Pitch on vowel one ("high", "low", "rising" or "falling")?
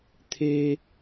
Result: high